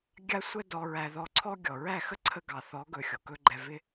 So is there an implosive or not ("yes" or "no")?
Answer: no